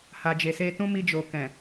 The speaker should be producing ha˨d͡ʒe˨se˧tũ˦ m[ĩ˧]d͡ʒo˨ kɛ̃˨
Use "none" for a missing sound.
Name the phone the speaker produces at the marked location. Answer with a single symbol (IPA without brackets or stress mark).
i˧